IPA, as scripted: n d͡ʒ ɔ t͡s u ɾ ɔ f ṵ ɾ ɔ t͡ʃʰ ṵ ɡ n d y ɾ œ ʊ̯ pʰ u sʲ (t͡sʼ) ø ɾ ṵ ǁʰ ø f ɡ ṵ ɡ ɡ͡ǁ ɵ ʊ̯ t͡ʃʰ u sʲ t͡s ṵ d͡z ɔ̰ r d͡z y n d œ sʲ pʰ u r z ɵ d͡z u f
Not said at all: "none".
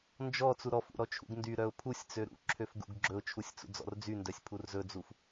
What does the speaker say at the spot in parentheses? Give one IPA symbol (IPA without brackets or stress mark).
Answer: t͡s